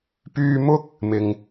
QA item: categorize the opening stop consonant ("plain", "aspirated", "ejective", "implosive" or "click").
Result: plain